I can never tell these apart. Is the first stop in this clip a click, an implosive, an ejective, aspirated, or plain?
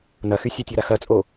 plain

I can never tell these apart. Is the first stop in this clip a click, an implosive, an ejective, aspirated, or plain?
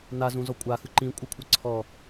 ejective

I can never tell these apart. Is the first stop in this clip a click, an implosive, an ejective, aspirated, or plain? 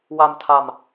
aspirated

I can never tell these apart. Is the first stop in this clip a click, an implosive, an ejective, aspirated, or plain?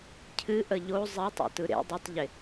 aspirated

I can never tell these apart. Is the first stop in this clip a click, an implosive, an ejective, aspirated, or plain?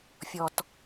plain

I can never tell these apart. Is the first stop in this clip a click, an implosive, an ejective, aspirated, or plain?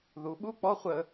implosive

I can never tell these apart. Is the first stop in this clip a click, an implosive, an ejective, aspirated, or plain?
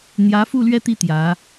plain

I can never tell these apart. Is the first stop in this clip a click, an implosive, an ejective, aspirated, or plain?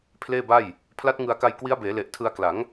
aspirated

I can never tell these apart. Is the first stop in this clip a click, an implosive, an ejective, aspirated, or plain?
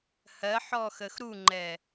click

